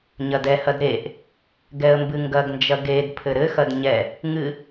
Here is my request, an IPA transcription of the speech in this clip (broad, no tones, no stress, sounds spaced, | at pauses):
ɲ ɐ d ɛ h ɐ d ɾ e ʔ | ɡ ɛ ə̯ m b ɨ ŋ ɡ ɐ ɡ n d͡ʒ ɐ ɡ e d pʰ ɘ ɾ ɘ x ɐ d ɲ ɛ | ŋ ɨ